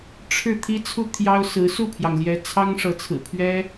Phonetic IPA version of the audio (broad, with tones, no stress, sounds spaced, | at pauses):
ʈ͡ʂʰ ɻ̩˥˩ t̪ʰ i˥ t͡sʰ u˥˩ t̪ʰ j ɑ˥ ʊ̯ s ɹ̩˧˥ s u˥˩ pʰ j ɑ˩ ŋ l j ɛ˧˥ t͡sʰ ɑ˥ ŋ ʂ ɤ˧˥ t͡sʰ ɹ̩˨˩ pʰ ɥ ɛ˥